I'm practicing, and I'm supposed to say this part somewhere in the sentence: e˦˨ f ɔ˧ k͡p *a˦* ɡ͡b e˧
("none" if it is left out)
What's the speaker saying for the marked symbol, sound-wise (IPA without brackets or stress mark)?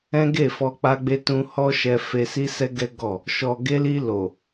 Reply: a˧